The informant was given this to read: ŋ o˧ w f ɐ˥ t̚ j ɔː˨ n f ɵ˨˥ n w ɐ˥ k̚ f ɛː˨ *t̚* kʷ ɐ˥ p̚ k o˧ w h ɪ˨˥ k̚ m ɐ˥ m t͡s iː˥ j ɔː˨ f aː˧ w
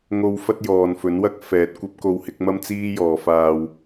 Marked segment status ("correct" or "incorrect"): correct